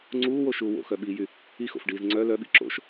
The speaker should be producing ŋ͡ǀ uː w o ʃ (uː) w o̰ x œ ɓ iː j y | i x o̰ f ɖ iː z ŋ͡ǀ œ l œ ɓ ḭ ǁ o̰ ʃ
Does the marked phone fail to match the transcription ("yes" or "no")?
no